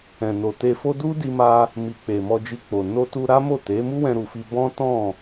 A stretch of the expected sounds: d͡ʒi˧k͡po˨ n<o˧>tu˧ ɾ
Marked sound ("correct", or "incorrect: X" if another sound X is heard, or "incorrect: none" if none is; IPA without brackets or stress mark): correct